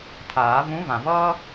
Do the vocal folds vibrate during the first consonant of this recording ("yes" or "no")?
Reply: no